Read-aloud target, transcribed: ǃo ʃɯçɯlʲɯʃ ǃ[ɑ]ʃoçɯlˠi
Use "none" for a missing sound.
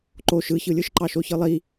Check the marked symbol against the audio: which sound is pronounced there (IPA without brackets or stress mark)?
ɑ